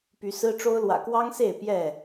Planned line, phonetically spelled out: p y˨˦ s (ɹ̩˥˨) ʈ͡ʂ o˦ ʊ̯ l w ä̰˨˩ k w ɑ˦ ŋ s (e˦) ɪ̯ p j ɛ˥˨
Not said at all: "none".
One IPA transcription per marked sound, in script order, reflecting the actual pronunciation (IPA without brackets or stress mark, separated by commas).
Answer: ɹ̩˦, e˥˨